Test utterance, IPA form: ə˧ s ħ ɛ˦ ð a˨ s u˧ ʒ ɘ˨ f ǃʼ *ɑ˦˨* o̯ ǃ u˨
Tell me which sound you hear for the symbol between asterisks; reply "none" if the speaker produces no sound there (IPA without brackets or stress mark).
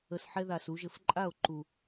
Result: a˦˨